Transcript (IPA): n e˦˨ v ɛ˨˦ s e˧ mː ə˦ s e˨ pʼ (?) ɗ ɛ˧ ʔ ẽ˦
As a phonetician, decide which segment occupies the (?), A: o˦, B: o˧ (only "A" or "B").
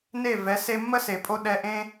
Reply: B